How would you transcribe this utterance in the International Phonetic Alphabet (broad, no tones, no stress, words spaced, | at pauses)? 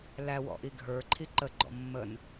læwɔ̰ ʔiɡʱə˞ǃʰi ǃəɡ͡ǃɔ̰ mːən